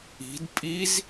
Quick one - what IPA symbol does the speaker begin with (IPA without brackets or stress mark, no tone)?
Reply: i̤